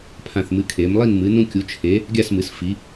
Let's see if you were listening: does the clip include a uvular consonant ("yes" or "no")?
no